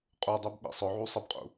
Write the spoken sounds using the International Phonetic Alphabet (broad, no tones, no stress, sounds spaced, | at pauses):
qʼ u dˤ ɛ b ɓ ḭ sˤ ʊ ʕ u sˤ ə b qʼ ṵ